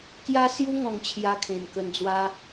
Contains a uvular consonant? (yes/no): no